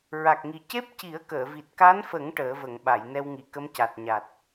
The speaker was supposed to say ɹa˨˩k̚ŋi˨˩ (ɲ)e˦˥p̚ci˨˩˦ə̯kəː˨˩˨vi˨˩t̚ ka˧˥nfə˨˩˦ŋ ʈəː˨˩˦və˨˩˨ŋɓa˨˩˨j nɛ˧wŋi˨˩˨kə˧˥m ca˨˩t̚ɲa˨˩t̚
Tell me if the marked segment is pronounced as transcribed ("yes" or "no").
no